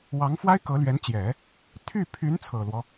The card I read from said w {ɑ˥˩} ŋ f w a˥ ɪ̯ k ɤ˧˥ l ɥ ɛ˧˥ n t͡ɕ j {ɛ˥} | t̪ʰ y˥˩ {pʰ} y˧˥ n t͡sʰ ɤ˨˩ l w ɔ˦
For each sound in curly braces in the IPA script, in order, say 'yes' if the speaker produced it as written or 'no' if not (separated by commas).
no, no, yes